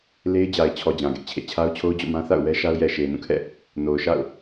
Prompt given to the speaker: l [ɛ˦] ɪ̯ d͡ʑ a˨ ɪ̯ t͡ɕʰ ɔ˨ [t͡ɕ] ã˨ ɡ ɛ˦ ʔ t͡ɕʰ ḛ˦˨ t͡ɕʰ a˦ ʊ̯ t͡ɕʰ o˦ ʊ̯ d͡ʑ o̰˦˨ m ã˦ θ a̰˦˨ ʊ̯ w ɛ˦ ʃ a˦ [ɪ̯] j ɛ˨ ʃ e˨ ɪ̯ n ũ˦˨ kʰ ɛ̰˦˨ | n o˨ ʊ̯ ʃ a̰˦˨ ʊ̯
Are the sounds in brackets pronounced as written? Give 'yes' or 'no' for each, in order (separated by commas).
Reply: no, no, no